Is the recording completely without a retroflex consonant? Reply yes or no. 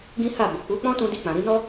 yes